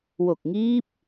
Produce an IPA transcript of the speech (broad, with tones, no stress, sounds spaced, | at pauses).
w o˨˩ k̚ ŋ iː˦˥ p̚